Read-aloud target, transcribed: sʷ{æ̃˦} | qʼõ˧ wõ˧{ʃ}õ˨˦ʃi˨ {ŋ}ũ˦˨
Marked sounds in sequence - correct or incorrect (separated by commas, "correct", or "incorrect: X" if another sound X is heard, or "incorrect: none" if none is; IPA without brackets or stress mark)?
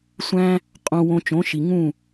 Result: correct, incorrect: t͡ʃ, correct